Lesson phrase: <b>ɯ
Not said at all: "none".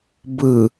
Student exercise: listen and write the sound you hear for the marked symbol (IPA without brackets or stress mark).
b